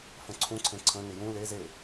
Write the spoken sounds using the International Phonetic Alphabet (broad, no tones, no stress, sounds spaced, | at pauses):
f ə̃ ǀʰ ũ ǀʰ ẽ ǀʰ ə̃ n ɪ j ũ l e z e